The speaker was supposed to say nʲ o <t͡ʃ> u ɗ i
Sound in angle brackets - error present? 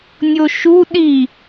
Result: yes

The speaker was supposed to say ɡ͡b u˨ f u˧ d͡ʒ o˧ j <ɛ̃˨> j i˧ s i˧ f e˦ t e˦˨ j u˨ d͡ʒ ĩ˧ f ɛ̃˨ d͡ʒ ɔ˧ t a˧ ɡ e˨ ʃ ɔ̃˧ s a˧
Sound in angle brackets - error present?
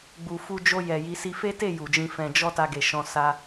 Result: yes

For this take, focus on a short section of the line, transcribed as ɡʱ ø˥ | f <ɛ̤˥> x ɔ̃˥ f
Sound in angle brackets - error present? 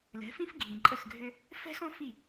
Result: no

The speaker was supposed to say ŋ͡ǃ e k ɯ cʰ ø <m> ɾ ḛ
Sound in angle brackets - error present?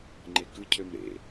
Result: no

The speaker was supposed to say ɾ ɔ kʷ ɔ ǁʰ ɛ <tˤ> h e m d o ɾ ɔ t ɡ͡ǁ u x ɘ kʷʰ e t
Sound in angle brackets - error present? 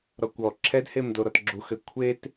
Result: yes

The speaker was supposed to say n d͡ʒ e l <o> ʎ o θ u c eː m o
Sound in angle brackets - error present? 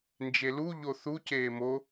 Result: yes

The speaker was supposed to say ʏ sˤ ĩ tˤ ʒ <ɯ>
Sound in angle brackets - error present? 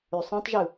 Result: no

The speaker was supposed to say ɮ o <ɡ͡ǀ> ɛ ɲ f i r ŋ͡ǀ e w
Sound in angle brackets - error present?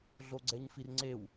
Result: no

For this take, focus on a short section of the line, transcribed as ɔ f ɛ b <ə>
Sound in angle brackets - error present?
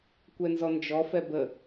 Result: no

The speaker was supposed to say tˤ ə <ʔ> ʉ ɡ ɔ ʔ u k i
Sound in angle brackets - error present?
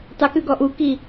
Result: yes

